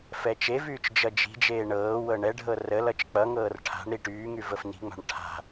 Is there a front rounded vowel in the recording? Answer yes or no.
yes